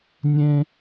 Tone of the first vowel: high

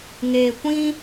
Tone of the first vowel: low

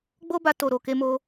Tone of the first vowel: high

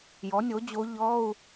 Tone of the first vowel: rising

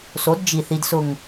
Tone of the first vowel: rising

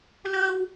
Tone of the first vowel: high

